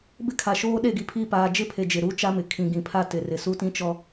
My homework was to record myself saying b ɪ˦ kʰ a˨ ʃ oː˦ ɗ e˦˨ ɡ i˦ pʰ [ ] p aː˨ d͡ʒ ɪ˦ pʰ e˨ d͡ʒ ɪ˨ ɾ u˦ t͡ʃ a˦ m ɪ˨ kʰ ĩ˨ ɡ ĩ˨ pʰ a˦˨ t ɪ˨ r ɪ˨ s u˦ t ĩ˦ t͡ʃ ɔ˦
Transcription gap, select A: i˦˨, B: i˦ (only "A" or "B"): A